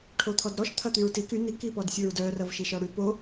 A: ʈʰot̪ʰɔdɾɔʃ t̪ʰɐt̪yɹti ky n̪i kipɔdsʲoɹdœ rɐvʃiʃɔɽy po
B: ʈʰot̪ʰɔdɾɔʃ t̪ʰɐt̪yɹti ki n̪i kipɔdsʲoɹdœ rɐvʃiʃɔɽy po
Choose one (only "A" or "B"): A